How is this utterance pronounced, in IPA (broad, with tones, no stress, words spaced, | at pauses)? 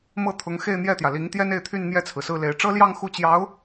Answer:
mɤ˥˩t̪ʰʊ˧˥ŋ xe˥˧ɪ̯n̪jɛ˥˩t̪jä˩ li˧˥ŋt̪jɛ˥ne˥˧ɪ̯t̪ʰy˥˧n n̪jɛ˥˩t͡sʰɹ̩˩sɹ̩˥˩le˧˥ɪ̯ ʈ͡ʂɤ˥ljɑ˥˧ŋ xu˥˩t͡ɕjɑ˧˥ʊ̯